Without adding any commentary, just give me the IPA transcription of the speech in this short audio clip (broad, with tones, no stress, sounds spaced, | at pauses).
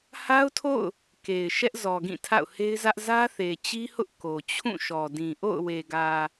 h a˦ ʊ̯ tʰ o̰˦˨ ʊ̯ | k e˨ ɪ̯ ʃ ɛ˦ ʔ z ɔ˨ ɡ ĩ˦˨ tʰ a̰˦˨ ʊ̯ h e˦ ɪ̯ z ä˦ ʔ z ä˦ θ e˨ t͡ɕ i˦ h ʊ˦ ʔ k o˨ t͡ɕʰ ũ˦˨ ʃ ɔ˨ d ĩ˨ ʔ o̰˦˨ ʊ̯ w e˨ ɡ ä˨